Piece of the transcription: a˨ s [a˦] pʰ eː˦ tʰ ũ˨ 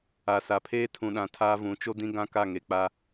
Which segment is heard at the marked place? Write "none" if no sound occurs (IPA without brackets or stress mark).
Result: a˨